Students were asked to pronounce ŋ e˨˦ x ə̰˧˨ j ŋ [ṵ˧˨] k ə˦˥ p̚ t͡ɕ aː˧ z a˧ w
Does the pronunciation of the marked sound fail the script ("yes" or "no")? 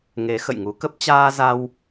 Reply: yes